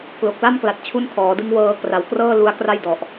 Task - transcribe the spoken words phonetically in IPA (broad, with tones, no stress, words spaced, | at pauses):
klo˨˩k̚la˥˩mkla˨˩t̚t͡ɕʰu˦˥n kʰɔː˩˦dɯ˦˥ŋ wɤː˦˥ kra˩˦wkrɤː˥˩ lu˦˥a̯kra˥˩jdɔ˨˩ʔ